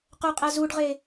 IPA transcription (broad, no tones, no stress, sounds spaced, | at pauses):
q ɵ qʼ æ z u ɖ ʁ e